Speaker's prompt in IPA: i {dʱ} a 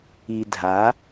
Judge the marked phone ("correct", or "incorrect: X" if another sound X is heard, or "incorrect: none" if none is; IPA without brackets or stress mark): correct